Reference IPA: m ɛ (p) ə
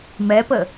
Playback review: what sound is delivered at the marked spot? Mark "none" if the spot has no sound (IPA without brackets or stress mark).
p